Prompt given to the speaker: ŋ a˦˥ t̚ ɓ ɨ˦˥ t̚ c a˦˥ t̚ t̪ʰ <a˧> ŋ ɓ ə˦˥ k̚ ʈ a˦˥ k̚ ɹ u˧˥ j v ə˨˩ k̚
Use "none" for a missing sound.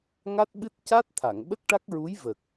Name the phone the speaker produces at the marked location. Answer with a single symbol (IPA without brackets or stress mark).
a˨˩˨